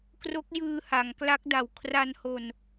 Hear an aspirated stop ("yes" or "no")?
yes